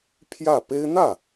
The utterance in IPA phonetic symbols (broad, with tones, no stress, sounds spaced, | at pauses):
pʰ j ä˥˩ p e˥ ɪ̯ n̪ ä˥˩